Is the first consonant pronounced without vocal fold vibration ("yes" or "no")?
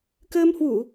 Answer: yes